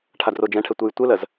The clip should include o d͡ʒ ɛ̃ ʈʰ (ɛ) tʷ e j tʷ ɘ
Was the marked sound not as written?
no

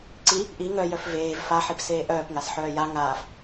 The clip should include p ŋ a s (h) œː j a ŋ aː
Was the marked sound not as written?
yes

